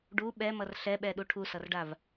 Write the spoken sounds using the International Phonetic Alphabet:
ɖ u ɓ ɛ m ʌ r ɬ ɛ ɓ ɛ ɗ u ʈʰ u s ʌ r ɖ a v

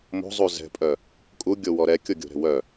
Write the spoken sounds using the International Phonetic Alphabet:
m o̤ zˤ u z ɛ̤ pʼ œ | kʼ u ɡʲ o w ɔ ɾ ɛ kʲ o ɡʲ o̤ ɾ ɛ̤ w œ

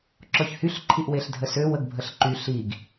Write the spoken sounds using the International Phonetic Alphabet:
ǁ ɔ ç h y ɬ ǃʰ i ʔ w e ɬ dʱ ə s ø w ə ɡ bʱ ə ɬ ǃ y ɬ i ɡ

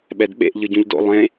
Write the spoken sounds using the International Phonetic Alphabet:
ɓ ɛ d ɓ ḛ ʔ ʎ ɯ ɟ ũ ʎ d o̰ lˠ ẽ

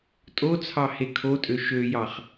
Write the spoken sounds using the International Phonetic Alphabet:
tʼ o t͡sʰ ɑ h e kʰ o tʼ ø ʃ ø j ɑ χ

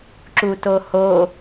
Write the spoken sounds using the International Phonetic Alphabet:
ǁ u t o h o

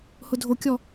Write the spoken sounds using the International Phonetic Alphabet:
h ʊ dʱ o kʲ ɔ

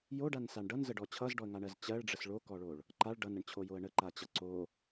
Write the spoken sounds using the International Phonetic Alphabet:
j o ɖ a n s a ɳ ɖ ʌ n z ə ɖ ɔ t͡ɕʰ ʌ z ɖ ɔ ə̯ ŋ a ɳ ɜ z t͡ɕ ɜ ɭ ɖ͡ʐ ə s ɭ o k ɔ ɭ o ɭ | ǃ a ɭ ɖ ʌ n ə ɳ t͡ɕʰ o j o ə̯ ɳ ə ǃ a t͡ɕ ʌ ǀ o

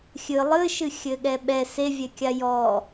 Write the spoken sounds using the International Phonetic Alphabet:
xʲ ɨ lˠ ɨ ʃ ɨ xʲ ɘ ɠ ɛ ɓ ɛ s e vʲ ɛ kʲ a j ɔ

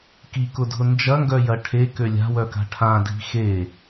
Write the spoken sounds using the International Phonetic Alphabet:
k i k ʊ dʱ ʊ n d͡ʒ ɐ ŋ ɡ œ j ɐ ʈʰ e k ø lʲ a̤ w œ k a̤ ʈʰ ã dʱ i̤ x e

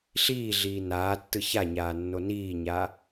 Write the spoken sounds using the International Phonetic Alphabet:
ɬ iː ɮ iː n aː tː ɯ ç a ɲ aː nː o n iː ɲ a

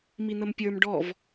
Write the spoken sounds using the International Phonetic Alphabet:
m i n̪ ə m pʲ ə˞ m ɖ ɔ v

